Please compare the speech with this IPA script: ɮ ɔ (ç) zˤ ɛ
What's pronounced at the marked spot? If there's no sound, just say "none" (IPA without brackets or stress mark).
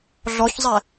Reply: ç